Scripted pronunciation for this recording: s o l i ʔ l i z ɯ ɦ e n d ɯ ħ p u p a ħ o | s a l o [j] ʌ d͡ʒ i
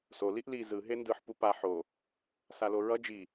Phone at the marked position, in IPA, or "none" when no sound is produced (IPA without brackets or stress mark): ɹ